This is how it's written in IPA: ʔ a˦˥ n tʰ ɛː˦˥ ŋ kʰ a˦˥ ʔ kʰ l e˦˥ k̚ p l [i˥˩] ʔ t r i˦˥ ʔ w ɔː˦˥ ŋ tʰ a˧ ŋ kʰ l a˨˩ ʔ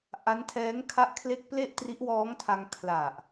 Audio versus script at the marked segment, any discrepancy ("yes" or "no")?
yes